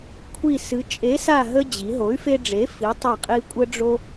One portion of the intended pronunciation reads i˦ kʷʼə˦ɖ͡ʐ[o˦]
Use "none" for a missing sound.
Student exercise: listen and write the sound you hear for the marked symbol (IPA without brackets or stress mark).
o˦